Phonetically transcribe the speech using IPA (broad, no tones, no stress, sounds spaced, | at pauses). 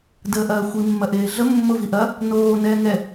d əː ʔ ɐː xʷ i mː ɐ ʔ eː ɮ ə mː o v i ʔ ɐ | n oː n ɛː ŋ ɛ